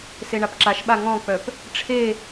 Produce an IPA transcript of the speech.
s e ɳ a p ǁ a ʃ ɓ a ŋ ɔ̃ k͡p œ p | ʈ͡ʂʰ e

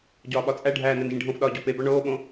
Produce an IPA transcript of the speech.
ɟ ɒː ɓ ɒ t͡sʼ æ ɖʱ æː n æ n ʒ ĩ ɖʱ õ f ɗ ɒː ɟ o p e b ɒ ɳ oː ɓ õ

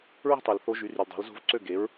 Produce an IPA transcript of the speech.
ɹ i̤˥ tˤ u˩ l θ o˧˥ ʒ y˩˥ r y˩ l dˤ o̤˩˥ l z o̤˥˨ v ǀ ø˥˨ ɡ e˩˥ ɹ

